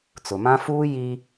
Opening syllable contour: low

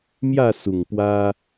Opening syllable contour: falling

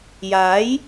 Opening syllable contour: rising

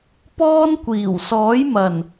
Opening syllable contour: high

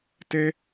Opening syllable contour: high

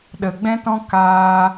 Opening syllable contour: low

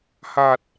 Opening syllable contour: low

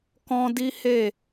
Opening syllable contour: high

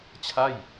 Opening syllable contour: falling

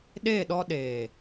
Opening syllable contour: falling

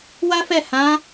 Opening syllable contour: high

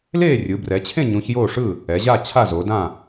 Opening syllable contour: falling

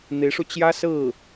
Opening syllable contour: rising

